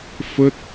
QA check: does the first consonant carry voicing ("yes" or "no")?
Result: no